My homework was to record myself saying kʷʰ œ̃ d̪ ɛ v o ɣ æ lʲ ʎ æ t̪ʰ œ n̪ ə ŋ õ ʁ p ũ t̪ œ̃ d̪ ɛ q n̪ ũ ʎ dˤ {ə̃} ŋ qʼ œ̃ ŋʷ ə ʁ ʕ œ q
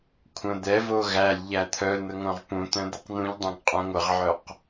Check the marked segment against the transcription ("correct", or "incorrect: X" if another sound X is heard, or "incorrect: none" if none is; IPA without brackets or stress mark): incorrect: œ̃